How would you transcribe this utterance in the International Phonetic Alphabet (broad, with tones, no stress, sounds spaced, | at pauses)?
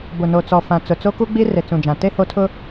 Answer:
b ʊ˨ n o˨ t͡s ɔ˨ f ã˨ t͡s ʊ˨ t͡s o˦ k u˦ ɡ͡b i˦ r e˨ t͡s ũ˨ d͡ʒ ã˨ t e˦ h o˦ tʰ ʊ˦